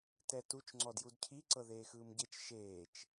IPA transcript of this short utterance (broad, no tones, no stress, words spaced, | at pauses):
tɛtut͡ʃ ŋ͡ǀɔdjudcʰi ǀɤðeːxɯːmɟet͡ʃ ʃeːt͡ʃ